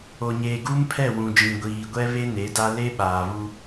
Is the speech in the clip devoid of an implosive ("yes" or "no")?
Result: no